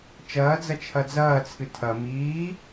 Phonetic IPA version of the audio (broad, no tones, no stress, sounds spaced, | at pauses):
t͡ʃ ɐː d͡z ɐ t͡ʃʰ ɐ d͡z ɐː t͡sʰ ɨ tʰ ɐ m iː